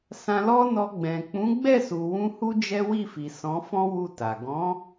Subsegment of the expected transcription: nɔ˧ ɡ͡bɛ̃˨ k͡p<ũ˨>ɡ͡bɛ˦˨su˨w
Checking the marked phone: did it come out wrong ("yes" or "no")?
yes